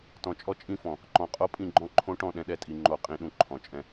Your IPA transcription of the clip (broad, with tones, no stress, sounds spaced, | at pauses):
t ɔ̃˨ t͡ʃʼ ɔ˦ t͡ʃʼ ĩ˦˨ f ɔ̃˨ | ǃ ɔ̃˨ qʼ o˦ pʼ ĩ˦˨ ɡ͡ǃ ɔ̃˦ ǃʰ õ˦ ʈ ɔ̃˦˨ ɗ ɛ̃˦ ɗ ɛ˨ tʼ i˨ ŋ͡ǃ o˨ qʼ ĩ˨ ɗ ũ˨ ǃʰ ɔ̃˨ t͡ʃʼ ɛ̃˦